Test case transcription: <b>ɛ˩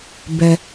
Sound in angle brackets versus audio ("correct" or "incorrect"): correct